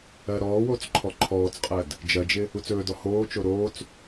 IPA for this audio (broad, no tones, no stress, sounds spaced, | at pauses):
ɜ ɾ ɔː w oː t͡s ǃʰ ɔ ǃʰ ɔː t͡s qʼ ɜ d | d͡ʒ ɜ d͡ʒ ɪ | u t͡s ɵː d ɔ h oː t͡ʃ o ɾ oː t͡s